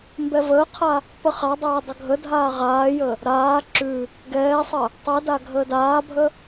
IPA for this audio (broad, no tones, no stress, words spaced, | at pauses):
mbɛvəːqʰa | pəχadˤɛː dˤəɡʱədʱaː ʁaːjə | ɾaː ǁʉ | ɡɛːsˤə | tˤɛda ɡʱəːdaːbʱə